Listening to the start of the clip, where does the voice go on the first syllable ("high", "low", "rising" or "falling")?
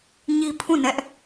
high